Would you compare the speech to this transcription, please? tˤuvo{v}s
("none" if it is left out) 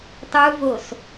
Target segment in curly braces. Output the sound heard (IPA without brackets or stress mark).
none